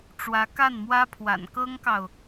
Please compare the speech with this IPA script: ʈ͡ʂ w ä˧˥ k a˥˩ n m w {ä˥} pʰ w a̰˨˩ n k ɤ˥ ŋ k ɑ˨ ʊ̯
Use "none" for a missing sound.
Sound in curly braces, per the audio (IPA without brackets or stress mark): ä˥